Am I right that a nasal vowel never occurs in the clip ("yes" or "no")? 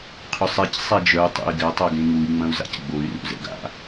no